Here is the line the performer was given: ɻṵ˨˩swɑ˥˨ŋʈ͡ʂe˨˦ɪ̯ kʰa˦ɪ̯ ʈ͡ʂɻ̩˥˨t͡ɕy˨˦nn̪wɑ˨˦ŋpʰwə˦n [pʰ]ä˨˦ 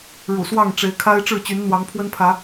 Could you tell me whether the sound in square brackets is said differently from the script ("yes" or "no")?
no